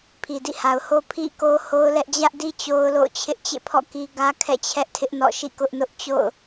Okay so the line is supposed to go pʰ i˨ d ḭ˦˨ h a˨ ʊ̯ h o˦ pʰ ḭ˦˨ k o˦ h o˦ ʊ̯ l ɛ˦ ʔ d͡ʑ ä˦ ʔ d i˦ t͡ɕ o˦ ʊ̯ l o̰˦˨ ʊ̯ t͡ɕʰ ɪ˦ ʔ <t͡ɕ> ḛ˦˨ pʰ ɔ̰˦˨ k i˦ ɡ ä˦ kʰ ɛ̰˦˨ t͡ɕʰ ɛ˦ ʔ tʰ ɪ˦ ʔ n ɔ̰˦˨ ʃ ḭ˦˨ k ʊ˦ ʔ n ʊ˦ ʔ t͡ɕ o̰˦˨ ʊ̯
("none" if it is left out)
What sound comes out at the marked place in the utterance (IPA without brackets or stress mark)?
t͡ɕ